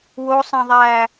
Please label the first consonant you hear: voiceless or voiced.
voiced